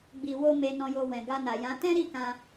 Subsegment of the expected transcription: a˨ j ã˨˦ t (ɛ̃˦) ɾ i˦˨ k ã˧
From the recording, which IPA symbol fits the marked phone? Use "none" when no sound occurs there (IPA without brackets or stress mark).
ɛ̃˦